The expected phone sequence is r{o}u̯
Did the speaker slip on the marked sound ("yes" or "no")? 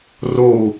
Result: no